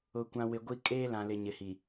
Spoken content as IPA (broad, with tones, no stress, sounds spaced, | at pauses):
ʊ˨ kʷ ã˨ w ɪ˨ ɡʷ i˦ kʼ eː˦ l ã˨ l ɪ˨ ɲ ɪ˨ h i˨